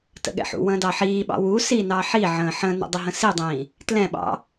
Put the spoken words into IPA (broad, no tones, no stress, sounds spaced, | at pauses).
t ə̰ ɠ ɛ̰ ħ ṵ w ə̃ː d ɑ ħ iː ɓ ɑ̰ w u s i n ɑ ħ i ʕ ə̃ː ħ ə̃ n ə̰ dˤ ə ɦ ə̃ s i dˤ ĩː | t l ɛ̃ ɓ ɑ̰